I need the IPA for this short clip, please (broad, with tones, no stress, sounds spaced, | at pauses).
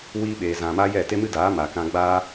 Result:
w iː˧ ɓ eː˨ z ã˨ m a˦ j ɛ˦˨ t e˦ m ɨ˦ d aː˨˦ m a˨ k ã˧ ɡ͡b aː˦